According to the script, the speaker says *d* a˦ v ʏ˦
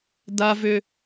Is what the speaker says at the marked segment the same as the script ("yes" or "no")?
yes